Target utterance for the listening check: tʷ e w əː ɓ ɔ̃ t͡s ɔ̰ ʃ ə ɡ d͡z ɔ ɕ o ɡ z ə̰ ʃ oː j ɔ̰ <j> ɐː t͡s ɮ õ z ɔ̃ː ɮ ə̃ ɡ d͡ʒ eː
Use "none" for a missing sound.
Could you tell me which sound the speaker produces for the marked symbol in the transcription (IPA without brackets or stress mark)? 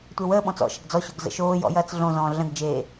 j